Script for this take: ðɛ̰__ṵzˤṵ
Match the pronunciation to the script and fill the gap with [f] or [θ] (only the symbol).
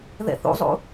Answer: θ